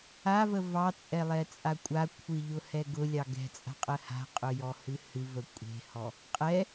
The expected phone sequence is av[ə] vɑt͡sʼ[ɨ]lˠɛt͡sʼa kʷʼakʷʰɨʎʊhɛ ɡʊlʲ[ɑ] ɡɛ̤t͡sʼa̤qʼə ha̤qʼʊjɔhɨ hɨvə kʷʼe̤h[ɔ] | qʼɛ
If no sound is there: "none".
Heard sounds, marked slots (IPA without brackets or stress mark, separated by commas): ə, ɛ, ɑ, ɔ